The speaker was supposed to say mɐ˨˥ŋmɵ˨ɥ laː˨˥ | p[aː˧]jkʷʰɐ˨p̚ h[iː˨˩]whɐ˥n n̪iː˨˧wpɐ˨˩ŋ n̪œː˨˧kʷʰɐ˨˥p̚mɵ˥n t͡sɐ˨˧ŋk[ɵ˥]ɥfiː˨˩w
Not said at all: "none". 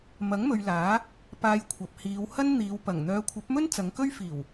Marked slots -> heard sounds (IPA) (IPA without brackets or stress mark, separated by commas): aː˧, iː˨˧, ɵ˥